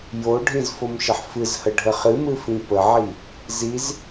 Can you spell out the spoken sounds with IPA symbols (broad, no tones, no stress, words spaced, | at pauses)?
joɖʱĩz fomʃəħfɨzhə ɖʱəχɨmɨ fĩpəʕi | ziz